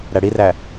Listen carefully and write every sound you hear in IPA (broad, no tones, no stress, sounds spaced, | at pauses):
ɾ æ ɽ i r æ